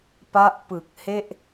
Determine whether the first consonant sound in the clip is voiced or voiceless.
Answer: voiceless